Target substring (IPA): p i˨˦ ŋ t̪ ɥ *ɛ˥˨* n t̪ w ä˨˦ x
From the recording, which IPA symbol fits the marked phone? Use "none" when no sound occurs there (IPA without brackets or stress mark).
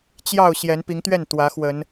ɛ˥˨